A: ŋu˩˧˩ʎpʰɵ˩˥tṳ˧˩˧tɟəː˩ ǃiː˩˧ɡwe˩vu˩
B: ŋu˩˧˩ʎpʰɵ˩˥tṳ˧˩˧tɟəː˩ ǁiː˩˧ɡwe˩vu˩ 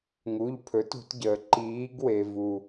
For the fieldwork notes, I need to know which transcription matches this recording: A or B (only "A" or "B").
A